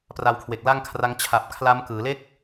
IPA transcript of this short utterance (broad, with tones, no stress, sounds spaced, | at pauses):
p r a˧ w kʰ w e˨˩ k̚ l a˥˩ ŋ kʰ r a˦˥ ŋ t͡ɕʰ a˨˩ p̚ kʰ l a˦˥ m k ɯː˩˦ l e˥˩ k̚